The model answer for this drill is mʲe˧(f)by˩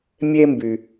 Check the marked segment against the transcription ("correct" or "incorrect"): incorrect